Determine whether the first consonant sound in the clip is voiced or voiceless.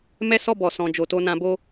voiced